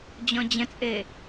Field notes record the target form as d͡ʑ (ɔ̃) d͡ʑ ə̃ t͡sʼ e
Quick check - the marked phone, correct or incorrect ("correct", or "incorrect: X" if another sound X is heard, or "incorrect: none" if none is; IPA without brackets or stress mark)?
correct